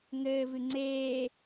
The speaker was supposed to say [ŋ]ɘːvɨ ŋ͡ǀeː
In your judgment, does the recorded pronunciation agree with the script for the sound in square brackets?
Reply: yes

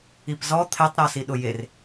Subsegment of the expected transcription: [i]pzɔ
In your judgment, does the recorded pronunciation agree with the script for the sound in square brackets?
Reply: yes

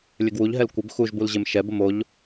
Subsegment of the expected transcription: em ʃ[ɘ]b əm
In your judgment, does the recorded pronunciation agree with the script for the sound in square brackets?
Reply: no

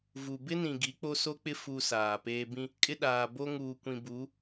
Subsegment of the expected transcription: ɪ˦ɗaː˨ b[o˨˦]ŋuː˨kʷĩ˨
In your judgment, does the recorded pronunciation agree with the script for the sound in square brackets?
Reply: no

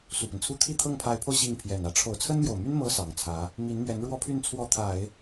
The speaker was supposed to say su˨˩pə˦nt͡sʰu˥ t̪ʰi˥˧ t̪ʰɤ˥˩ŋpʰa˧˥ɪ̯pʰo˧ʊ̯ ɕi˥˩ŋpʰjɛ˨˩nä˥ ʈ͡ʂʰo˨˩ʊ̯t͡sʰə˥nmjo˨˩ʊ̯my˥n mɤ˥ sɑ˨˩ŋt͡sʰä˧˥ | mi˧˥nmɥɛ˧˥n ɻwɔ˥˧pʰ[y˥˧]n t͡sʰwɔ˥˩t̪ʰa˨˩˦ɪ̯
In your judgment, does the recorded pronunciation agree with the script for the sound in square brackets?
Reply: yes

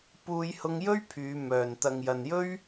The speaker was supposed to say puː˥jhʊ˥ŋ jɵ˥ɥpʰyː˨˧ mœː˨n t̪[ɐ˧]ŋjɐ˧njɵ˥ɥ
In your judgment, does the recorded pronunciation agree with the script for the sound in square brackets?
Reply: yes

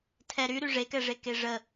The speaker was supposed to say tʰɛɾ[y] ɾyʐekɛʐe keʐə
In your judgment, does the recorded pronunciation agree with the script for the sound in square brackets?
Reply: yes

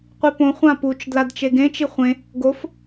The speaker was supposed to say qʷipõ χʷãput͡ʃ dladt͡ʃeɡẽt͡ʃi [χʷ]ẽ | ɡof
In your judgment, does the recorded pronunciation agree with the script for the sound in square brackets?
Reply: yes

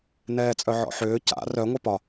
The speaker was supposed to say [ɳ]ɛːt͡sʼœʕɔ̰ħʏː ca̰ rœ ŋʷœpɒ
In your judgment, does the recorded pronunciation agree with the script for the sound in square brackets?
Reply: no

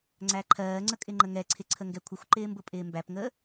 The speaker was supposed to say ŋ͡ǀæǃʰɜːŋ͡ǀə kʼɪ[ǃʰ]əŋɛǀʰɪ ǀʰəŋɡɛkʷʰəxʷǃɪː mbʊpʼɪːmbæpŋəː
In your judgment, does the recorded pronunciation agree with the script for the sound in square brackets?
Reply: no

